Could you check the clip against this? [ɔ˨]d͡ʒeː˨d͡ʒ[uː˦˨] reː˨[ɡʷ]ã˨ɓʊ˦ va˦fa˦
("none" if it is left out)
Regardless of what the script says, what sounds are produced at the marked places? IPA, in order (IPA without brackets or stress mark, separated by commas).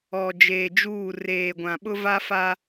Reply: ɔ˨, uː˦˨, ɡʷ